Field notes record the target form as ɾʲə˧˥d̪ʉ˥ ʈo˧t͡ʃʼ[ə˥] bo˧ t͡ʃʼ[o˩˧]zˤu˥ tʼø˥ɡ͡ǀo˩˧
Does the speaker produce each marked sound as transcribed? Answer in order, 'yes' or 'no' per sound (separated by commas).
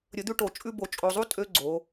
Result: no, no